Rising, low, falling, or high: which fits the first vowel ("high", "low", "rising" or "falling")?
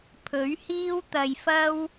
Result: rising